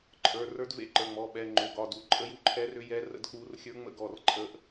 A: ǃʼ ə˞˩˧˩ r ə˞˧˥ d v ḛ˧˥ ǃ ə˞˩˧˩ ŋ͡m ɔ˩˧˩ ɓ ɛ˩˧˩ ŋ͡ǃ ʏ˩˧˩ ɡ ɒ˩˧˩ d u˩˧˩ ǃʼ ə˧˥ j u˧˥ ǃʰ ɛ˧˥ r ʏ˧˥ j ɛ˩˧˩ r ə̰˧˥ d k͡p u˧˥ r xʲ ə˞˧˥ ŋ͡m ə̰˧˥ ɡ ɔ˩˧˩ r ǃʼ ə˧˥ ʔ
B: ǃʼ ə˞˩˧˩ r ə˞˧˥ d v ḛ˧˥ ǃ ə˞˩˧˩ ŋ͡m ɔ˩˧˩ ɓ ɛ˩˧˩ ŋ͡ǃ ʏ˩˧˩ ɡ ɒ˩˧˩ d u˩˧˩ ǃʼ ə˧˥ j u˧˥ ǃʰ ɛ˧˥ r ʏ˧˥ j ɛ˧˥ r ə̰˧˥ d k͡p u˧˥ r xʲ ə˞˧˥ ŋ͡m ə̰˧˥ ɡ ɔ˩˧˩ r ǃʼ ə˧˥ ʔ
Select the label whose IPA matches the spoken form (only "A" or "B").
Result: B